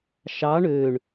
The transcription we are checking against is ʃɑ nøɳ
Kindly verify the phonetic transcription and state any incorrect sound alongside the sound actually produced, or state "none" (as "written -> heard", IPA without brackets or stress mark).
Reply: n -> ɳ